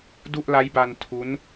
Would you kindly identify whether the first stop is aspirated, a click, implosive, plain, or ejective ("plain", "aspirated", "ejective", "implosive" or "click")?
plain